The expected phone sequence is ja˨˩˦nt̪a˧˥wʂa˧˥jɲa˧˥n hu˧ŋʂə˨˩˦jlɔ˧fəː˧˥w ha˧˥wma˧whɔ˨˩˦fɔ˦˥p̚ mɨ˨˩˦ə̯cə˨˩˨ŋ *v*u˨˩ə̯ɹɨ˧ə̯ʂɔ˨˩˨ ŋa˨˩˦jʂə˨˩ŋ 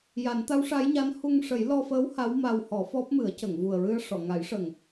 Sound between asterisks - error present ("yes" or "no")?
no